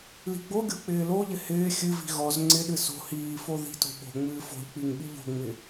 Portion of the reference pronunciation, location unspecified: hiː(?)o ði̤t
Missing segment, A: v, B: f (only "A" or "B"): B